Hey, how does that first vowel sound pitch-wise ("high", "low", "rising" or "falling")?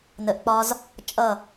low